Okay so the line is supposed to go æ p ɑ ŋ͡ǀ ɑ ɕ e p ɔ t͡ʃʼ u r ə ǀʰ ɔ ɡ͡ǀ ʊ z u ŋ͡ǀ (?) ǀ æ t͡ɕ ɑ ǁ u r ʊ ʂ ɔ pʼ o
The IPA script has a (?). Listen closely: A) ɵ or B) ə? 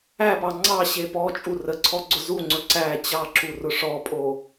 A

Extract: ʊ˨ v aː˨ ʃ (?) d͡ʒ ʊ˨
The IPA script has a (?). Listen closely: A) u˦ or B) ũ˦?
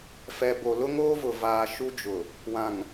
A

